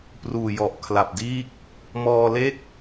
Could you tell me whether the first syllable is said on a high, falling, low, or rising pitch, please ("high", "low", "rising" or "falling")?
low